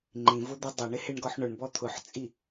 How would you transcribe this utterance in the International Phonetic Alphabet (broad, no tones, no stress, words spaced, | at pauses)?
ŋ͡ǃĩvʊd̪i dˤeɳɪhɪɳɡɔħ ɳʊɳbɔ t̪ʰʊħt͡sʼi